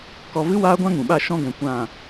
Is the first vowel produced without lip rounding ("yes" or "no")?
no